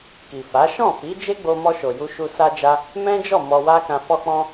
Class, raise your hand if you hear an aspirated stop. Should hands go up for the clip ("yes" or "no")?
no